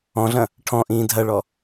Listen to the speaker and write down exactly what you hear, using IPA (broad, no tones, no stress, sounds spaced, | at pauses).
ɔ̃ ɮ ɐ̃ | ʈʰ ɔ̃ ʔ ĩː dʱ ɐ ɭ ɔ